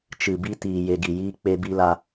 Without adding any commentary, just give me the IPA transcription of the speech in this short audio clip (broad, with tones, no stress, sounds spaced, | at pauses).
t͡ʃ ɨ˨ b i˧ t iː˨ j e˨ ɡ i˨ j iː˧ k͡p e˧ b i˧ l a˧